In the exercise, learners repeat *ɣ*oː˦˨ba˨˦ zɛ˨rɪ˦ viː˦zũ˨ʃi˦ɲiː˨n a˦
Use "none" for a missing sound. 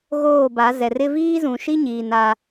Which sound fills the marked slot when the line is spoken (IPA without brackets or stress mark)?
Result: ɣ